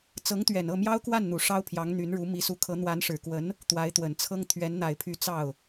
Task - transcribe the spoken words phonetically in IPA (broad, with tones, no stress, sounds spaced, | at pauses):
t͡s ɤ˧˥ ŋ t̪ ɥ ɛ˨˩ n ɤ˥˩ m j ɑ˥ ʊ̯ k w a˥˩ n n̪ u˨˩ ʂ ɑ˥ ʊ̯ pʰ j ɑ˧˥ ŋ n̪ y˧˥ n ɻ u˧˥ m i˧˥ s u˧˥ kʰ ɤ˧˥ n̪ w a˧˥ n ʂ ɻ̩˨˩ k w ə˧˥ n | t̪ w a˧˥ ɪ̯ t̪ w ə˨˩ n t͡sʰ ɤ˥ ŋ t̪ʰ ɥ ɛ˧˥ n n̪ a˨˩ ɪ̯ pʰ y˧˥ t͡s ɑ˥˩ ʊ̯